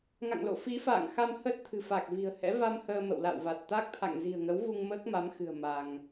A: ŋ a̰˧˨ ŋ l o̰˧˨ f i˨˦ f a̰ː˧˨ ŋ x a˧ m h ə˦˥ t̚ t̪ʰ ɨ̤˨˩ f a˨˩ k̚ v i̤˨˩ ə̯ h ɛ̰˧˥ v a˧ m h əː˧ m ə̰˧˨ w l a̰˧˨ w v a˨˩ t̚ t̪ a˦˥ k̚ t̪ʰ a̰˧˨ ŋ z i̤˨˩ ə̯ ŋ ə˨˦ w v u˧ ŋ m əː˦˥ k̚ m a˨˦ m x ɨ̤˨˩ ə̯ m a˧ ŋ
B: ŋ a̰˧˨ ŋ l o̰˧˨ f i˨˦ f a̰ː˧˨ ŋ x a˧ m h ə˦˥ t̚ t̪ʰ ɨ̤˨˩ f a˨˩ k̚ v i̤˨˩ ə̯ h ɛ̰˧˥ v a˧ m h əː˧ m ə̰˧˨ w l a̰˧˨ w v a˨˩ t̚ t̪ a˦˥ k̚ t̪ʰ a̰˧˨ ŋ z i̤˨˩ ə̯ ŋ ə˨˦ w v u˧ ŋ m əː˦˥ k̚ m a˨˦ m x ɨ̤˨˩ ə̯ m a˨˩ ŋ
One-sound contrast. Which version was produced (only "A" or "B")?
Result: A